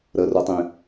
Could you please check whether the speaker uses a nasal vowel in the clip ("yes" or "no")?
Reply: yes